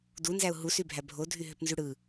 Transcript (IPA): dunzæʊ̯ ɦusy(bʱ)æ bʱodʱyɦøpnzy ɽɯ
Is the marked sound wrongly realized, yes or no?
no